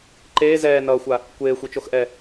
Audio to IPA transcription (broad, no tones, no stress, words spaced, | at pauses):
ǃeː zɛː nʌːxʷa | kʷeːxʷit͡ʃoxʔɛ